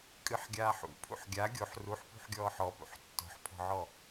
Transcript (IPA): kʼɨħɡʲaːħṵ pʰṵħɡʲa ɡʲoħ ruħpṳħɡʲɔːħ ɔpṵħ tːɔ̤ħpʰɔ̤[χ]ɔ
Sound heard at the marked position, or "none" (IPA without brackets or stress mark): ʕ